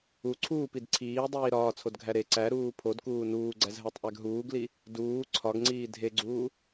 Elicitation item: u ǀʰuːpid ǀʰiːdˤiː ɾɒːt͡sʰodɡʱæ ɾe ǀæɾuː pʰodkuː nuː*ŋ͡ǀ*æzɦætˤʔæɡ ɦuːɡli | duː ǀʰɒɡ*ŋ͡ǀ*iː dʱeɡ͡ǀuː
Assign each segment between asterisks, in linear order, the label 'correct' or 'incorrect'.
incorrect: ɡ͡ǀ, correct

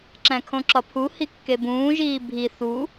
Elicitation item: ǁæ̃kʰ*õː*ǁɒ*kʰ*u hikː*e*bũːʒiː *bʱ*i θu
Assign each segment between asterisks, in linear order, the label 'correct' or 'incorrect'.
incorrect: õ, incorrect: pʰ, correct, correct

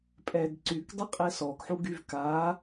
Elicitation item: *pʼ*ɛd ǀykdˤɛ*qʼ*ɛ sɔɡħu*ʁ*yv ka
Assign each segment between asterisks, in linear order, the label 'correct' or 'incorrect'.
correct, correct, incorrect: ɡ

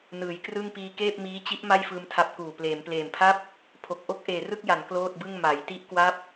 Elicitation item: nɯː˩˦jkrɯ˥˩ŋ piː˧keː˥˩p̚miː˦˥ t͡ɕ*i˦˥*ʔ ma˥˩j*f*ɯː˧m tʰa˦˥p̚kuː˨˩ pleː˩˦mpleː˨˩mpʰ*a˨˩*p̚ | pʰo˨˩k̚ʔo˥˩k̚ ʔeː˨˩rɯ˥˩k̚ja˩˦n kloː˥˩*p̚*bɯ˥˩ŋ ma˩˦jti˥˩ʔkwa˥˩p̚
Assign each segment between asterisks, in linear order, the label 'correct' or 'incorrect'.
correct, correct, incorrect: a˥˩, incorrect: t̚

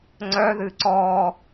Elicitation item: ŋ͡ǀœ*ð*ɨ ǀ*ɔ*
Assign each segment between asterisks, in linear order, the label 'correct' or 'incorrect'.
correct, correct

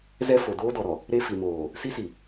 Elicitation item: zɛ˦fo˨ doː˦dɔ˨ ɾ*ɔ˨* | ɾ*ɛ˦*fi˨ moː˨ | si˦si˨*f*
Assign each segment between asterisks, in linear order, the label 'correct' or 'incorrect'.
correct, incorrect: e˦, incorrect: none

